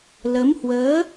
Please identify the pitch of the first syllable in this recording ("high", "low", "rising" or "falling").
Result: rising